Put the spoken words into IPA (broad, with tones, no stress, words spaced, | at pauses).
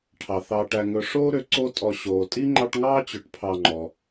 ʈʰɑ˩θɑ˨ʈæ˨ ŋɵ˨ ʂoː˥ ɾø˨ ǀo˦tʼɔ˨ ɕoː˩tʼi˥ŋ͡ǃɑ˦ʈŋɑː˥ t͡ɕɵ˨ʈpʰɑ˨ŋ͡ǃɔ˩